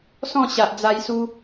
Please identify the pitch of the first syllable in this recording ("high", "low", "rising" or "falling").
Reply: falling